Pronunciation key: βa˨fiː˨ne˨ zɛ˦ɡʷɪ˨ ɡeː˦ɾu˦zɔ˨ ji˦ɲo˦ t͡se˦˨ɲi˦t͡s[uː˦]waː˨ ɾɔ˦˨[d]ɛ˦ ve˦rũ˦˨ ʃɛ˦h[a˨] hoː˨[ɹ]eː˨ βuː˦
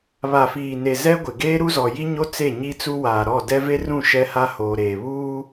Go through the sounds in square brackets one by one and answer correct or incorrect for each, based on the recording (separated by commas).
incorrect, correct, incorrect, incorrect